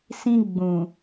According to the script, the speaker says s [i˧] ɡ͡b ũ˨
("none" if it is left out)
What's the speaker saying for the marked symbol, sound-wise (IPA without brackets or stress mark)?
ĩ˧